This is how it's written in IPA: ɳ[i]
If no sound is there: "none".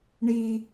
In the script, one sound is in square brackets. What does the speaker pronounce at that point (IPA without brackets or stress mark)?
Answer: i